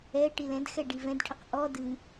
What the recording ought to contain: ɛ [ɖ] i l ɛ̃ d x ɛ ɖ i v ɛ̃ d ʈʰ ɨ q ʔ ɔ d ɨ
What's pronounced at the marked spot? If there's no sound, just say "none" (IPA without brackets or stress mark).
ʈ